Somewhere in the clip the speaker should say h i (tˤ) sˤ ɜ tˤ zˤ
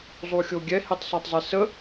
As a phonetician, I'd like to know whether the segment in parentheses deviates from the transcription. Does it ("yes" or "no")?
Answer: no